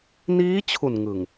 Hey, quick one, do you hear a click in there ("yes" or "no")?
no